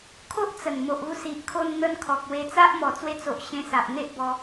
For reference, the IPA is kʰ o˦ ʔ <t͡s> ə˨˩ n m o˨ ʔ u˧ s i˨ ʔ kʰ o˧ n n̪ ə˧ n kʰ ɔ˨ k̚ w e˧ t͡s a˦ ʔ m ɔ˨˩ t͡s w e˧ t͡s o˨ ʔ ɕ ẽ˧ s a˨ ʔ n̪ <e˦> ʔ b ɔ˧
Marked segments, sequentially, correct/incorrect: correct, correct

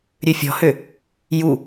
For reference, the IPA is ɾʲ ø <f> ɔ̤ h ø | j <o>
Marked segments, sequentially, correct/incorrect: incorrect: fʲ, incorrect: u

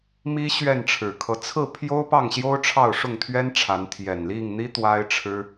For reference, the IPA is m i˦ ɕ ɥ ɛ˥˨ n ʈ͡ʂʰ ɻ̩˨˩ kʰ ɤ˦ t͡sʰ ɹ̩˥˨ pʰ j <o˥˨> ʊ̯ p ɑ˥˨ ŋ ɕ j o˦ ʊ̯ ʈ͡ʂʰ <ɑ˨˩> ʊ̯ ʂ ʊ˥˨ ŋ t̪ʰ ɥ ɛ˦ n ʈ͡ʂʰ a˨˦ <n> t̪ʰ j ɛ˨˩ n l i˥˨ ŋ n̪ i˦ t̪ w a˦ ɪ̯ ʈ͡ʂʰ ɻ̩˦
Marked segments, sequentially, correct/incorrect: incorrect: o˦, incorrect: ɑ˥˨, correct

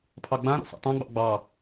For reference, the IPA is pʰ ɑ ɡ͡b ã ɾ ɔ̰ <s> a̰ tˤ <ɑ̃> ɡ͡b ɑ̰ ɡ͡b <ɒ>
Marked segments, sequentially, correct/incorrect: correct, incorrect: ã, incorrect: ɑ

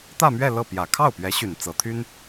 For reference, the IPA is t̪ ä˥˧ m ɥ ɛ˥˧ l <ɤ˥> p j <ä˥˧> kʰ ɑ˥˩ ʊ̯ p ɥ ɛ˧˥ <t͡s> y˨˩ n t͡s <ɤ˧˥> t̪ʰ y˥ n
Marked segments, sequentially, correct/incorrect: incorrect: ɤ˥˩, incorrect: ä˨˩, incorrect: ɕ, correct

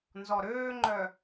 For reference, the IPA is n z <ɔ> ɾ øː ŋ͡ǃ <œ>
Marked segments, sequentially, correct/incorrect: correct, correct

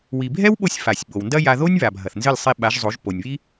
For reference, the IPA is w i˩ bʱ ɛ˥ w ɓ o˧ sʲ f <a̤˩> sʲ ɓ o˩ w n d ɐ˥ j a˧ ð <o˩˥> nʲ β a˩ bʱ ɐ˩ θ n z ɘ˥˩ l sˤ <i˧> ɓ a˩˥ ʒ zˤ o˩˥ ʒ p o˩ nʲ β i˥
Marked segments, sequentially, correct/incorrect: incorrect: a˩, incorrect: o˥, correct

